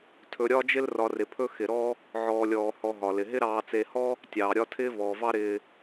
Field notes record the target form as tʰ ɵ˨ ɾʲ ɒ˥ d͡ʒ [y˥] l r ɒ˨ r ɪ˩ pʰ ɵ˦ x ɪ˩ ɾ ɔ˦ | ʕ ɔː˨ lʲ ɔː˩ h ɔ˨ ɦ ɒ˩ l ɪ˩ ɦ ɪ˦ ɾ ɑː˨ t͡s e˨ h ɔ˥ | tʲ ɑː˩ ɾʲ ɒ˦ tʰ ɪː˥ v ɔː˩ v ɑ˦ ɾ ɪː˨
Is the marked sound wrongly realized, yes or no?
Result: yes